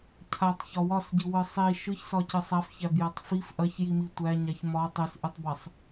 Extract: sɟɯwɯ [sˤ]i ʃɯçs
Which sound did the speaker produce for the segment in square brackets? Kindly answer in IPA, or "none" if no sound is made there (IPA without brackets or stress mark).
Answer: sˤ